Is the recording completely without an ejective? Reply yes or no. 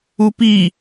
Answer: yes